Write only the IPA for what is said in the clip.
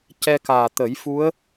c ɛ˧ k aː˨˩ t̪ ə˨˩˦ j f u˧˥ ə̯

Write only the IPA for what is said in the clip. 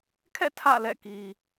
kʰ ɛ̰˦˨ tʰ ä̰˦˨ l ɛ̰˦˨ k i˨

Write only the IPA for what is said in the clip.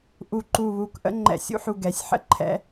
ʔ u˧ ǃ u˧˩ β u˧ k ʔ ə̰˥˧ ŋ͡ǃ ɛ̰˧ sʲ ṵ˥˧ ħ u˧˩ ɡ ɛ˩˧ sʲ ħ ə̰˥ ǃʰ ɛ̰˧

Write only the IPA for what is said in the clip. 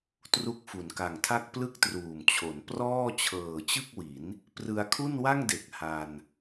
t r u˦˥ k̚ f u˩˦ n k a˨˩ ŋ tʰ a˥˩ k̚ p l ɯ˥˩ k̚ t r uː˨˩ m t͡ɕʰ o˩˦ n p r ɔː˥˩ t͡ɕʰ ɤː˨˩ t͡ɕ ɯ˥˩ k̚ w i˩˦ n | p r ɯ˧ a̯ kʰ u˥˩ n w a˥˩ ŋ d e˨˩ k̚ h a˧ n

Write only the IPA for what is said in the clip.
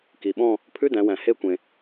k i˩ ɓ ɔ̃˦˨ | pʰ ʉ˧˥˧ d æ̃˩˧ w æ̃˩ h e˦˨ kʷ ẽ˩

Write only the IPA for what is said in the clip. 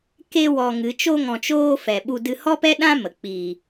k e˧ w ɔ˧ ŋ ɨ˨˦ t͡ʃ o˧ ŋ ɔ̃˨ t͡ʃ oː˧ f ɛ˨ ɓ u˧ d ɨ˧ h ɔ˦ p ɛ˦ ɗ ã˦ m ə˨ k͡p iː˨

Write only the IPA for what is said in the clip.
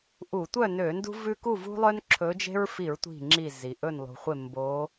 ʔ u˧˩˧ tʷ œ˥˨ n ø˧˩˧ n d ṳ˦ v ʉ˦ k u˥˨ v ṳ˦ lˠ œ˦ n ǁʰ ɵ˨˦ d͡ʒ e̤˦ ɹ f i˧˩˧ ɹ tʷ i̤˧˩ ŋ͡ǁ i˧˩ z i˩ ʔ ɵ˧˩ n lˠ ṳ˩ χʷ e˧˩ m b o˨˦

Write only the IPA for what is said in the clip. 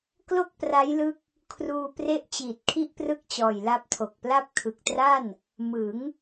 k l o˥˩ k̚ p r a˦˥ j l ɯ˦˥ k̚ | kʰ r uː˧ p r e˦˥ ʔ t͡ɕ iː˨˩ t̚ kʰ i˥˩ ʔ p r ɯ˥˩ k̚ t͡ɕ ɔː˨˩ j l a˦˥ p̚ tʰ o˨˩ k̚ p l a˥˩ p̚ kʰ ɯ˨˩ k̚ t r a˥˩ n | m ɯ˩˦ ŋ

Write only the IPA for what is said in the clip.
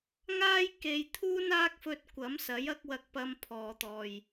ŋ aː˥ j k e˨ j t̪ʰ uː˥ n aː˥ k̚ f ɵ˧ t̚ kʷ ɐ˨˥ m s ɐ˨˥ j ɐ˥ k̚ w ɐ˧ k̚ p ɐ˧ m pʰ ɔː˨ t̪ ɔː˨ j

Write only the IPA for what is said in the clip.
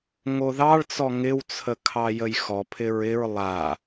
ŋ o ð ɑ ɭ t͡s ɔ ŋ ɪ w t͡sʰ ə kʰ ɑ j ə j x ɔ pʰ ɪ ɹ ɪ ɹ lˠ a

